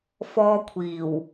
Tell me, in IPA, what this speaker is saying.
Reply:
f ɔː˧ kʷʰ iː˨˩ w

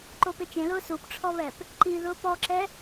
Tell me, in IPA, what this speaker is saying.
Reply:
ǃ o p e t͡ʃ ẽ l ʊː s u p ʈ͡ʂʰ ɔ β ɛ p | ǃ i ð ʊː p ɔ ǁ ɛ

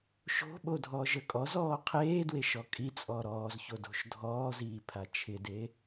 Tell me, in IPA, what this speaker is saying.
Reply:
ʃ o̤ ɓ o dʱ ɔː ʒ ə kʼ ɔ z ɔː qʰ eː d w e ʃ ɔ kʼ i t͡sʼ ɔ ɾ ɔː z ç o d o̤ ʃ dʱ ɔː z iː pʰ a t͡ʃʰ ɪ d e

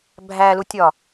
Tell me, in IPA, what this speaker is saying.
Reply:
bʱ æ l u tʲ ɒ

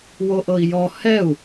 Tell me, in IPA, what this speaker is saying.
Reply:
w o ʔ ɤ i̯ j ɔ h ɛ u̯

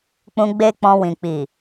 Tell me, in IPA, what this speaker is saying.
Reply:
k͡p ũ˧ ɡ͡b e˦ k͡p ɔ̃˧ w ĩ˨ k͡p i˨

